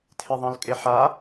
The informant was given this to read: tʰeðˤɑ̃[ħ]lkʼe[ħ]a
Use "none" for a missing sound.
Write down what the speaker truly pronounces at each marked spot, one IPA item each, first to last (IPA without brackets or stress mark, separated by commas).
none, ħ